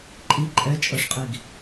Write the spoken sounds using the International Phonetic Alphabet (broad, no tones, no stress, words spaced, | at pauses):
ǃʼi ǃʼɛt͡ʃʼɤʂqʼiɡ